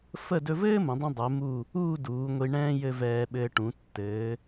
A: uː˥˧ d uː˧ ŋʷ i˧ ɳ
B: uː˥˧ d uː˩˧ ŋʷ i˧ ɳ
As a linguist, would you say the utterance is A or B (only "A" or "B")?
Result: B